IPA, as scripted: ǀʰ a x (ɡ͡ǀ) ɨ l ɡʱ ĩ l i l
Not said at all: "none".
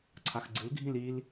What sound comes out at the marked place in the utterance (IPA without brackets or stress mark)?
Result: ɡ͡ǀ